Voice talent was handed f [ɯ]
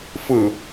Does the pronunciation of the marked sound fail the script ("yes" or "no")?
no